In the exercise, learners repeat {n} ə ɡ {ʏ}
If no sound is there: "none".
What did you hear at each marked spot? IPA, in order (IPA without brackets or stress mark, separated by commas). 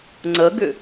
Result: ŋ͡ǀ, ʏ